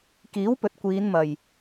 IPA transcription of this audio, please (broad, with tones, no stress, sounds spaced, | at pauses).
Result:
k iː˨˥ w p ɵ˨ t̚ kʷ iː˨˧ n m ɐ˨˩ j